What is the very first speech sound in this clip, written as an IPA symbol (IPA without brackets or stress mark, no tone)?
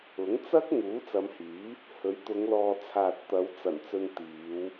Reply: ʊ